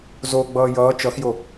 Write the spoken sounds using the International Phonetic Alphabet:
z o ɡ͡b ʌː j ʌː t͡ʃ ʌ x j o

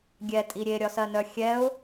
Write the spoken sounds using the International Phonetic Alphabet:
ɡʲ ɛ tʼ i ɾʲ e ɾʲ ɒ s ɜ n œ xʲ ɛ ʊ̯

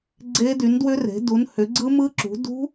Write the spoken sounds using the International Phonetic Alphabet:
ɡ͡ǀ e˦˥ d y˨˥ n d w ʏ˦˥ r e̤˨˥ d u˨˥ n h ʏ˨˥ ɡ͡ǀ ɯ˦˥ m ɯ˦˥ ǁ ṳ˨˥ d ṳ˦˥

